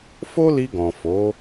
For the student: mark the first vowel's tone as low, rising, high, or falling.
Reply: high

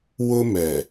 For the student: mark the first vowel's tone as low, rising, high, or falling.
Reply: high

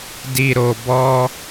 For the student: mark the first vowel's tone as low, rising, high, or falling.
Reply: low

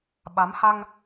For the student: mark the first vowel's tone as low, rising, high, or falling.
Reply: rising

